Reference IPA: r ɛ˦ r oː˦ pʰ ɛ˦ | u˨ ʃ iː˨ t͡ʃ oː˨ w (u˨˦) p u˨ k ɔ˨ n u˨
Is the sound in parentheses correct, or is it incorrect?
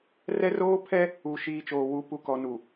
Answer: correct